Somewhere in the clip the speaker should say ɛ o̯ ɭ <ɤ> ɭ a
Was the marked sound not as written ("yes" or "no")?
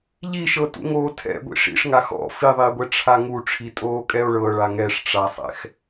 no